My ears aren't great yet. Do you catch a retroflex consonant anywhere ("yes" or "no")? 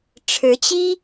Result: yes